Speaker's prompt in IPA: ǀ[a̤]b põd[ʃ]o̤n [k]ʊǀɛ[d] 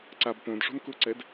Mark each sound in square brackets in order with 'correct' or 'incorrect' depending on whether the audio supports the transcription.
incorrect, incorrect, correct, correct

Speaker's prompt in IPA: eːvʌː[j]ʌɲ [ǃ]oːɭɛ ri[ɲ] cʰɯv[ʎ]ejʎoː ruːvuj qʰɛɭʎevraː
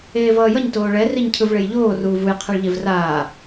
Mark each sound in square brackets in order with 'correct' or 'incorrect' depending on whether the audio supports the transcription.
correct, incorrect, correct, incorrect

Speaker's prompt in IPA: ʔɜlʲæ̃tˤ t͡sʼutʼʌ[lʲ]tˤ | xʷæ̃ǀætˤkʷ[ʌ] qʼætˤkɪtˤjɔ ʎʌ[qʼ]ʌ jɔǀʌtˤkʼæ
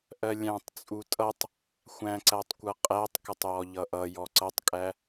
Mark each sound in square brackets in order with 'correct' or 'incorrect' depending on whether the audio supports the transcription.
incorrect, correct, incorrect

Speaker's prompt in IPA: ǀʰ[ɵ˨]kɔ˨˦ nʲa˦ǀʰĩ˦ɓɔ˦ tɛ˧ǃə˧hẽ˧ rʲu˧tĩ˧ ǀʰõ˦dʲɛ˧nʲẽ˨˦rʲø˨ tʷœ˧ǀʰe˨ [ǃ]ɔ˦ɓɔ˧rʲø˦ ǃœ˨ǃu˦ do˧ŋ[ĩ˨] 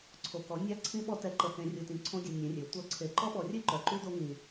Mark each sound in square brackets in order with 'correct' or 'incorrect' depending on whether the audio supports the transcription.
incorrect, correct, correct

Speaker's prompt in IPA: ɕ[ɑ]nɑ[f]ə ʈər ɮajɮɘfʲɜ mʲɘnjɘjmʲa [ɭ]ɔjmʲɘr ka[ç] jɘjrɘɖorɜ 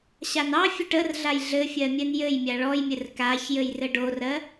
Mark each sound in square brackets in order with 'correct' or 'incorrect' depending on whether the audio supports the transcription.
incorrect, incorrect, correct, correct

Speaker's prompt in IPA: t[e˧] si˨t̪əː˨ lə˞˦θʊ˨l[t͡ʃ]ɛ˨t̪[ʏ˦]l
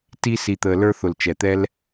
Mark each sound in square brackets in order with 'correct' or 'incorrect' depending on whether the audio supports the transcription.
incorrect, correct, incorrect

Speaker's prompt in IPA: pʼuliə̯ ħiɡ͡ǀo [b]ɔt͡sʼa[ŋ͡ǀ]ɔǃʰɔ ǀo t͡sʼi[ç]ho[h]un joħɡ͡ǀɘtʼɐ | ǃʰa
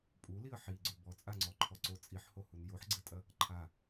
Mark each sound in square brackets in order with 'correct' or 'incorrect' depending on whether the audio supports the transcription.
correct, correct, incorrect, correct

